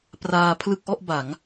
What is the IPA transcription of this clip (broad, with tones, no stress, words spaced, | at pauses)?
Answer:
praː˧pʰlɯ˥˩k̚ʔɔ˥˩ʔba˩˦ŋ